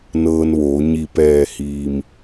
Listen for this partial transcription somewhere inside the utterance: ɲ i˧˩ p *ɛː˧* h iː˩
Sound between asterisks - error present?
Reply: yes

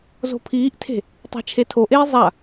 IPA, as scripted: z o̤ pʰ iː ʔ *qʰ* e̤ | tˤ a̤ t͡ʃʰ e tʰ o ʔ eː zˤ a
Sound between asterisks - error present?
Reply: yes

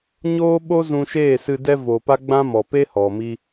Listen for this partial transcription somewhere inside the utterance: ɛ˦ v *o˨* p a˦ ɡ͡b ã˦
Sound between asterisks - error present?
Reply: no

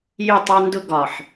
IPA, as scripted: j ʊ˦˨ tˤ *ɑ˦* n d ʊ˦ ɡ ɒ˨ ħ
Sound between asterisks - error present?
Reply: no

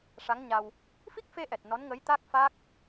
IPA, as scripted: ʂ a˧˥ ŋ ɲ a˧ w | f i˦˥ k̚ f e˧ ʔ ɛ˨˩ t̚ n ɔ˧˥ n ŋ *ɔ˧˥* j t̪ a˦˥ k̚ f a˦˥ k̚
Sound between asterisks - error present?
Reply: yes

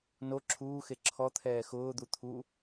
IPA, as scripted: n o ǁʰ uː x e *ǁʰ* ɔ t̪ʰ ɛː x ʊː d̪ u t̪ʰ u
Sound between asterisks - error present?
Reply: no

